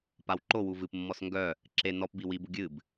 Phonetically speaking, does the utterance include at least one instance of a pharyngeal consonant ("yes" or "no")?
no